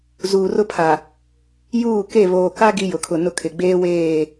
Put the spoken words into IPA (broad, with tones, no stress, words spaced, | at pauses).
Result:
zuː˨rʊ˦pʰa˨ | juː˦˨ke˦˨ βoː˨ka˦ ɡi˦jʊ˨kʰʊ˨nʊ˦ kʰɪ˨ɡ͡beː˦weː˦˨